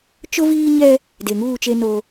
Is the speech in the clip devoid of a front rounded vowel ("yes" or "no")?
yes